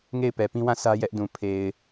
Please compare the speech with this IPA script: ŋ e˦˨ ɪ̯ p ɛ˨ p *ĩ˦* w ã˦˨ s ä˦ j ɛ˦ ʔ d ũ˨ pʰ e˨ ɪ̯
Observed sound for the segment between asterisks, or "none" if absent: ĩ˦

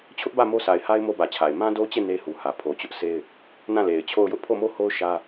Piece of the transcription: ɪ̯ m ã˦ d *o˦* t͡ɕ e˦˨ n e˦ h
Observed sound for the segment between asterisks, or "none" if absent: o˦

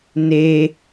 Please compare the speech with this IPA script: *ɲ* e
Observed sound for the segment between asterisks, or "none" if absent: n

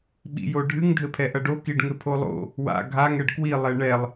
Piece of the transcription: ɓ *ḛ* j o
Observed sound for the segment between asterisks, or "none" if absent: ḭ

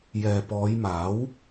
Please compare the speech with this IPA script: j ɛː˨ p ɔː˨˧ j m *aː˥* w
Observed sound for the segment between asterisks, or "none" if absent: aː˨˥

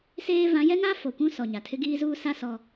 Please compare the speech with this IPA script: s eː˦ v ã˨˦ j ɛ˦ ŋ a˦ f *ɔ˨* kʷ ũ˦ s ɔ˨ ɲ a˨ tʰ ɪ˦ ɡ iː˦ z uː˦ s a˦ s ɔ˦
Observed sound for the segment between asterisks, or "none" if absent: o˨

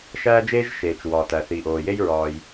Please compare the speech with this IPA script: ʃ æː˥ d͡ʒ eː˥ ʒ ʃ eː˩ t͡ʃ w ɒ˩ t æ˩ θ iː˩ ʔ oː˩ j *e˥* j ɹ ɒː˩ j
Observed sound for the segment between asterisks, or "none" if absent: e˥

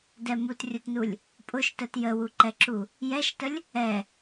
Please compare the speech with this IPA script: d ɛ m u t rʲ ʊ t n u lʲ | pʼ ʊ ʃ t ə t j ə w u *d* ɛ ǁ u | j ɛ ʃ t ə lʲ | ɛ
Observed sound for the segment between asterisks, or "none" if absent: ǃ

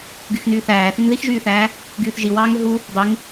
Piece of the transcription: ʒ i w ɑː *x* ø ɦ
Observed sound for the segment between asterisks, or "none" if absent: ŋ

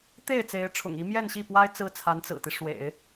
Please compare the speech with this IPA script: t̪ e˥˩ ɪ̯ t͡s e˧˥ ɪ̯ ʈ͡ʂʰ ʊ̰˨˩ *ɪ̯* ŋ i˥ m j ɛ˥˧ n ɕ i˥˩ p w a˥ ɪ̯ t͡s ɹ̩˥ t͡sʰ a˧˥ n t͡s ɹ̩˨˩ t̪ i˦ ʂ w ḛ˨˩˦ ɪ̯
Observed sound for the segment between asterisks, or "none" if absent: none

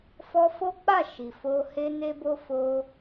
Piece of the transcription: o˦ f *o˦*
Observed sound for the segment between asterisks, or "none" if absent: o˧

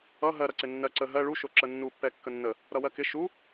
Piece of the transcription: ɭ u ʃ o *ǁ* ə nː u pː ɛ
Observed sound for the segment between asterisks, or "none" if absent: ǁ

